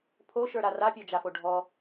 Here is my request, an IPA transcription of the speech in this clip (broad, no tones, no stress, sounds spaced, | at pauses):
pʰ o ʃ ə˞ ɾ a r a pʲ ɔ d͡ʒ a f o ɖʱ ɔ